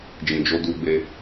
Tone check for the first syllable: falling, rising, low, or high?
low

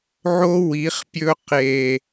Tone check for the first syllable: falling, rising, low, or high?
high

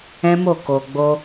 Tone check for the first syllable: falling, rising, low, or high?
high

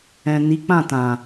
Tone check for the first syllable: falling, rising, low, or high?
low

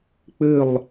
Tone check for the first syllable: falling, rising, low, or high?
falling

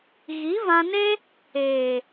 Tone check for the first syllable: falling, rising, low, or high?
rising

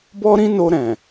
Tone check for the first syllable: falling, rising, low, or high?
high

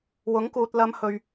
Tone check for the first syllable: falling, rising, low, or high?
rising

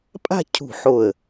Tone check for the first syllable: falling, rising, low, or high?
falling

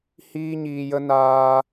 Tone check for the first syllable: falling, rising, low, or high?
high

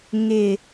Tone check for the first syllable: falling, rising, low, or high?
low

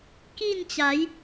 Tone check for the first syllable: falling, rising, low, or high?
falling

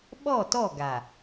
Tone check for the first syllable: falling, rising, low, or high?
falling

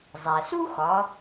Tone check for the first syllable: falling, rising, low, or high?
low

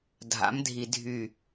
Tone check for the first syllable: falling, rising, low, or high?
rising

